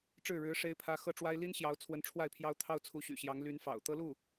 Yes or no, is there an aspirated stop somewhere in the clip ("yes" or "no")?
yes